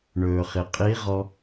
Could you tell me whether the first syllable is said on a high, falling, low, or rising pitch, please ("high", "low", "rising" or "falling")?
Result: low